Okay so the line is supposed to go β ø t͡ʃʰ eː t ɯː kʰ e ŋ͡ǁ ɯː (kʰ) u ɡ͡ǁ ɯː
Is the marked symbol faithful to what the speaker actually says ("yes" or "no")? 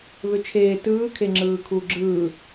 yes